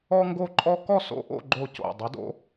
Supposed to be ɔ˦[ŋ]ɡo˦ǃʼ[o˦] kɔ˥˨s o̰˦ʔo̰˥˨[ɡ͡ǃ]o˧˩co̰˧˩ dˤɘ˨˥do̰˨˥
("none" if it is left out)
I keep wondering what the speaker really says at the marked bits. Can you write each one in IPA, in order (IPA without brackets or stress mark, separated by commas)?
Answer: ŋ, ɔ˦, ɡ͡ǃ